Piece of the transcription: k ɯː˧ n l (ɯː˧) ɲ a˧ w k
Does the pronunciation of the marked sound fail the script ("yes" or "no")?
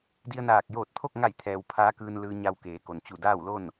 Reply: no